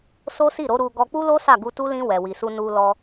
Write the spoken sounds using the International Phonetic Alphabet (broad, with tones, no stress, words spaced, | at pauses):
so˦si˦˨ɾo˨˦ ɾu˧ ɡɔ˧k͡pu˦lo˦ sa˦˨ɡu˧tu˦ lĩ˧ wɛ˨wi˨su˧ nu˧ lɔ˧